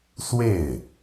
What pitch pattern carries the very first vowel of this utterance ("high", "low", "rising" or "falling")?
falling